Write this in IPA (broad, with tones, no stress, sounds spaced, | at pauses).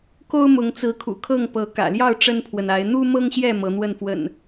k o˦ ʊ̯ m ʊ˨˦ ŋ t͡s ɹ̩˨˦ kʰ ṵ˨˩ kʰ ɤ˥˨ ŋ p ɤ˨˦ k ä̰˨˩ l j ɑ˥˨ ʊ̯ ʈ͡ʂ ə˦ n pʰ w ə˨ n a˨˦ ɪ̯ n̪ u˦ m ɤ˦ ŋ ɕ j ɛ˥˨ m ɤ˨˦ n̪ w ə˥˨ n f w ə̰˨˩ n